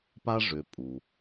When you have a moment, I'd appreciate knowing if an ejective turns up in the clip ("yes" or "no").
yes